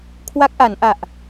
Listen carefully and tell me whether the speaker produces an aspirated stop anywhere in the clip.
yes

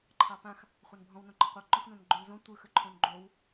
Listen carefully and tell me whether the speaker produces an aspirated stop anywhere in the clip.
yes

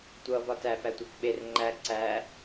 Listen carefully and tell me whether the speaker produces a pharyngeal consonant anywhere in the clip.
no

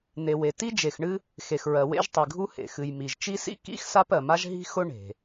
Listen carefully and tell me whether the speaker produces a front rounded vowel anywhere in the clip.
no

